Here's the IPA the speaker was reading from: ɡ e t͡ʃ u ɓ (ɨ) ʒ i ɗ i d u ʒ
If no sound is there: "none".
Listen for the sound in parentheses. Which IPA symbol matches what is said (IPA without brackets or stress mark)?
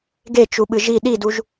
ɨ